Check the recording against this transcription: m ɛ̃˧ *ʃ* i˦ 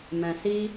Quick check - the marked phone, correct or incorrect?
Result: incorrect